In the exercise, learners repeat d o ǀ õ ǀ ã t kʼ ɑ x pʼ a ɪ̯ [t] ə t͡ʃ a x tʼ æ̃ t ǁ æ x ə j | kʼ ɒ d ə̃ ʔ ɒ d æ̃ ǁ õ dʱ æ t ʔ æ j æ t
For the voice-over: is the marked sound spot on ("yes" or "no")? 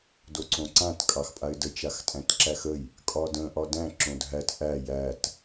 no